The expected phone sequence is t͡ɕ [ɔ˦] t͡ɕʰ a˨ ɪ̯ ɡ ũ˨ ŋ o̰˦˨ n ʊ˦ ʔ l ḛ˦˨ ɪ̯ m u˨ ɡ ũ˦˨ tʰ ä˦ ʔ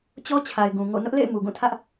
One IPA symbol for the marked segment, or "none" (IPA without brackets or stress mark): ɔ˦